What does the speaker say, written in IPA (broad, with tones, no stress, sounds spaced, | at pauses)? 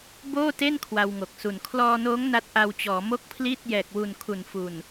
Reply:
b oː˥˩ t e˥˩ n kʰ w a˧ w ŋ o˨˩ k̚ s u˨˩ n kʰ l ɔː˧ n oː˦˥ ŋ n a˦˥ t̚ ʔ a˧ w t͡ɕ ɔː˩˦ m o˥˩ k̚ pʰ l iː˥˩ t̚ j ɛː˨˩ k̚ w u˨˩ n kʰ u˨˩ n f u˨˩ n